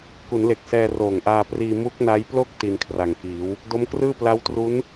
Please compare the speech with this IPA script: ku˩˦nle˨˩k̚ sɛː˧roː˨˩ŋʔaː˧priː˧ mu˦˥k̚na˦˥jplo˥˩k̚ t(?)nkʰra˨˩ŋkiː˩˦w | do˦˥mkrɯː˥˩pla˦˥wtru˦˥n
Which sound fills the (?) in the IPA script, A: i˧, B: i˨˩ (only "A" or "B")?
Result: A